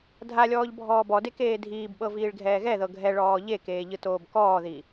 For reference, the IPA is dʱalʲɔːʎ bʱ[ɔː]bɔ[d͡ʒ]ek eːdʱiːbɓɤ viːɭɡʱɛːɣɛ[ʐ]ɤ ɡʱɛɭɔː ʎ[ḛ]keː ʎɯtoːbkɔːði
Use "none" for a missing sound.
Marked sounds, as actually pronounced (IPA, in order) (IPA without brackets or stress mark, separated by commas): ɔː, d, ð, e